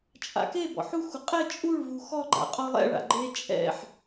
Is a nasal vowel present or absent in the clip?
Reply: absent